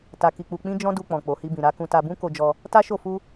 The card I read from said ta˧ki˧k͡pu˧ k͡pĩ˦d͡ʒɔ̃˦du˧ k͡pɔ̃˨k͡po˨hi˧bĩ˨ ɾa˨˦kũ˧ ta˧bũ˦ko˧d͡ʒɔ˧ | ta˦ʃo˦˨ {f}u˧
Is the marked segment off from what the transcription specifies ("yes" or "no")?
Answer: no